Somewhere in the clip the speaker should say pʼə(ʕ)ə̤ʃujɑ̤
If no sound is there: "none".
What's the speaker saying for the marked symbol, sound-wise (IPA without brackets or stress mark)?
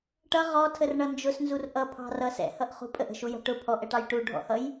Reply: ʔ